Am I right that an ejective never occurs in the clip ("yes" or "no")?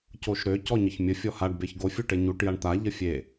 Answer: yes